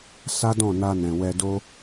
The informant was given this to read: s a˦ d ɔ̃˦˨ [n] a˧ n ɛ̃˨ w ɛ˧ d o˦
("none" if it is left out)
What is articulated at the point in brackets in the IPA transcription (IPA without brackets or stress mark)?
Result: n